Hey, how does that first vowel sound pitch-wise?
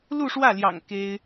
falling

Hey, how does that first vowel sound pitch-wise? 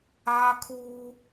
high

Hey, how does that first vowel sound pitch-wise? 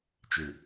low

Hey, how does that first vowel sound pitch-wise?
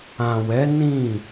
low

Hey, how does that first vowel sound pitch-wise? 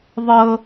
high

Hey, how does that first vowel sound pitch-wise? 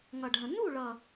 low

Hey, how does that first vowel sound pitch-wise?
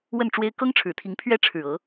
falling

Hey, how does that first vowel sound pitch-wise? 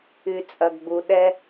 low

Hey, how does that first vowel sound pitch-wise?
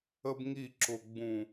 high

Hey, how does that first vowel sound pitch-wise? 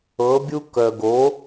rising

